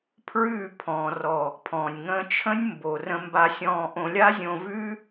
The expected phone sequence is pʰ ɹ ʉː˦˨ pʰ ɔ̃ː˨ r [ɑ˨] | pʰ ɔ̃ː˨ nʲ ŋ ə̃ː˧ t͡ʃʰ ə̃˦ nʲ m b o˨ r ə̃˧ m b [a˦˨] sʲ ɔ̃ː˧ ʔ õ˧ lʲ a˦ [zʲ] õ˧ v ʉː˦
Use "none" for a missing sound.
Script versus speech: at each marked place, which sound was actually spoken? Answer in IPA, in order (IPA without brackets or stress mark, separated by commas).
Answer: ɔ˨, a˧, zʲ